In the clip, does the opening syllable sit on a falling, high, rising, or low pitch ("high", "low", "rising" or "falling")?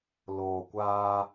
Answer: low